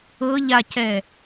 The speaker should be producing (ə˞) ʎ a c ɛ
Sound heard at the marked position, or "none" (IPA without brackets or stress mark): ɤ